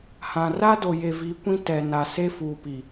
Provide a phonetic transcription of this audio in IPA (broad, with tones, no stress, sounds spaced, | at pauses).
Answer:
h ã˨ r a˦ d o˨ j e˨ v i˨˦ kʷ ĩ˦ t ɛ˨ n a˨ s e˦ f uː˨ p i˨